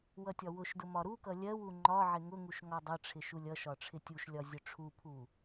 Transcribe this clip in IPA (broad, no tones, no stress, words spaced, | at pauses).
wʌtʲɒwʊʃdʊ mɒɾukʌ lʲɜwu ŋ͡ǃɒ ʕɪŋʊŋuʃ ŋɒdˤʌʈ͡ʂʰɪ ʃulʲʌʃɒ ʈ͡ʂʰɪtʲuʃlʲɒ zʲʊʈ͡ʂʰupʰu